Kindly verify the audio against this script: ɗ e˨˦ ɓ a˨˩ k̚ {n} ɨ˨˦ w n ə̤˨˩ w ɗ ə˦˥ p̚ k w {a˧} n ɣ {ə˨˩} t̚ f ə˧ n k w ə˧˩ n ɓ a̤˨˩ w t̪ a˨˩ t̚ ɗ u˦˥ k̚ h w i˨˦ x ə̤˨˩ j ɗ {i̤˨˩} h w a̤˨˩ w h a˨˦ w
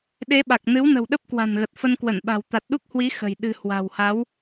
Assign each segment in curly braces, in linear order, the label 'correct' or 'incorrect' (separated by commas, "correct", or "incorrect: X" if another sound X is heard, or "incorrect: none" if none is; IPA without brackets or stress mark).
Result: correct, incorrect: a̤˨˩, correct, incorrect: ɨ̤˨˩